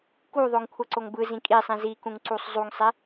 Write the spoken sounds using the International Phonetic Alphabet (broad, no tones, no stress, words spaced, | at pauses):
kuðˤoŋ kʷʰʌǀoŋbɯzĩ kʼi sˤĩzikũŋ ǀusˤzˤuŋsˤe